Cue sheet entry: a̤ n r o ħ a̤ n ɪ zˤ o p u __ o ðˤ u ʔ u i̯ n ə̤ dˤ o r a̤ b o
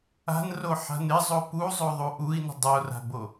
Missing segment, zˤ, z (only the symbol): zˤ